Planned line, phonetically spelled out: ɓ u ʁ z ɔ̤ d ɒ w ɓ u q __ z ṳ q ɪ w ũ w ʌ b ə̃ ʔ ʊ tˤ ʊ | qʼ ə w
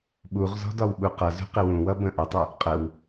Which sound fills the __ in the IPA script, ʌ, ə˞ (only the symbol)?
ʌ